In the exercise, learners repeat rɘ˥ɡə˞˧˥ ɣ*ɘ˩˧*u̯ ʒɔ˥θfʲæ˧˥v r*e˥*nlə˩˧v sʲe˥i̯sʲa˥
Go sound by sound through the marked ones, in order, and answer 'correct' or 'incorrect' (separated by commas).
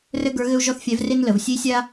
incorrect, correct